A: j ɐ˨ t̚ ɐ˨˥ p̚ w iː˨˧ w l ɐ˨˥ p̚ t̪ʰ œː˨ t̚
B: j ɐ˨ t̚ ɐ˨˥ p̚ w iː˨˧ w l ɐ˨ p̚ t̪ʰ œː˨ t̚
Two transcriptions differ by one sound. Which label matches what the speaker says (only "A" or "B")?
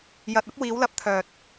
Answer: A